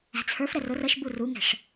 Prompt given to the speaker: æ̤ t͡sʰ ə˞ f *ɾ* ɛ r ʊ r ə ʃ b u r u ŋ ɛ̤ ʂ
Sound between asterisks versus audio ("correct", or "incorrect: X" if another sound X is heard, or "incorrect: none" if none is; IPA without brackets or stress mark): correct